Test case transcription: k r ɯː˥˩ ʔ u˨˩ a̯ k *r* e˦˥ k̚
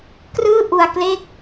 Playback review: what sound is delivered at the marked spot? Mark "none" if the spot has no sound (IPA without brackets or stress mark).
l